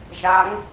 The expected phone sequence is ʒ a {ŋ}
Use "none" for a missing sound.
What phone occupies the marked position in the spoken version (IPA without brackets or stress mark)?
ŋ